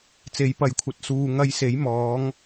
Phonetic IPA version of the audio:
t͡s e˨˥ j p ɐ˨˧ j kʷʰ ɐ˨˥ t̚ s uː˨ ŋ ɐ˧ j s e˨˥ j m ɔː˨˧ ŋ

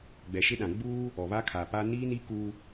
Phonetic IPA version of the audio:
ɡ͡b ɛ˨ ʃ ɪ˦ ɗ ã˨ ɡ͡b uː˦ | ɔ˨ β a˦ kʰ a˨ p a˦ n iː˦ n i˦ k u˦

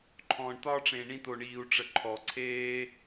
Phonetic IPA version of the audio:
ǃʰ ɔ̃ː˧ ɳ t̪ ɒː˦ ʈ͡ʂ ẽ˧ ɳ ĩ˦ t̪ o˧ ɳ iː˧ u̯ ʈ͡ʂ ə˧ ǃʰ ɔ˧ ǀʰ eː˦

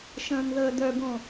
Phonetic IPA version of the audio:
ʃ ə̃ː n ð əː d œ b õ

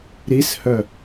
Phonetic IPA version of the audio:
ɾ i s h œ

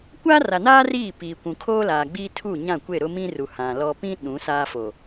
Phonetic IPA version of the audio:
kʷ aː˦ r a˨ n aː˦ r iː˦˨ p iː˨ kʷ ũ˨ kʰ oː˦ l aː˨ ɡ͡b iː˦ tʰ u˦˨ ɲ ã˦˨ kʷ e˦˨ ɾ ʊ˦ m ĩ˦ r u˨ h ã˨ l ɔ˨ p ĩ˦ ɗ ũ˨˦ s aː˦ f o˨

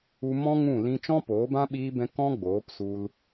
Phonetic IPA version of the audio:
u˧ m ɔ̃˦ ŋ ũ˦˨ l ĩ˧ t͡ʃ ɔ̃˦ p oː˨˦ b ã˦ ɓ iː˧ b ɛ̃˧ k ɔ̃˦ ɡ͡b oː˨˦ p s u˧ l

